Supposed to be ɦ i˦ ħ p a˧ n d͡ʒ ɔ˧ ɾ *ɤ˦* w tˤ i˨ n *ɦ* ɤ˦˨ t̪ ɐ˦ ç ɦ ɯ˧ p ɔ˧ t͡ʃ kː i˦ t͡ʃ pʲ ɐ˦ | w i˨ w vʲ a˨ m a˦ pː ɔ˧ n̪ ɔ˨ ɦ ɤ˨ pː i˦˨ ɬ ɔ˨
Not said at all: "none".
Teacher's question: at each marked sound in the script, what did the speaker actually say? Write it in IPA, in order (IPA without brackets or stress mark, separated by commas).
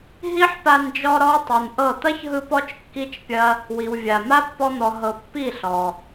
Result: ɔ˦, ʔ